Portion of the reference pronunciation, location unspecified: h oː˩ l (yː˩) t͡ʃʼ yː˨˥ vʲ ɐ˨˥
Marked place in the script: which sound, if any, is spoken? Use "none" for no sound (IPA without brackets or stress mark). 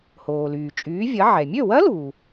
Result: yː˩